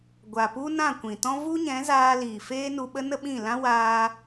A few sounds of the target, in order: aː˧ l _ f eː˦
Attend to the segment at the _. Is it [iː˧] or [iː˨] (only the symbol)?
iː˨